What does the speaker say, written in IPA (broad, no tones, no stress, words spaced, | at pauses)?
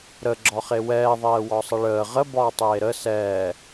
ɾə ɡ͡ǁɒχewɛː ðˤɛːwɒsˤəɭəː ʁə bɒːtˤeːɾə sɛː